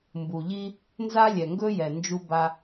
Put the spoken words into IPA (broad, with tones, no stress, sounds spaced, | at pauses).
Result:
m b u˨ ʎ i˦ | n z a˦ lʲ ɛ˨ ŋ ɡ ɵ˦ j ɛ˨ n d͡ʒ u˦ b a˦